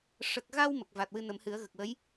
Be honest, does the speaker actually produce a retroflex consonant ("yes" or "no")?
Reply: yes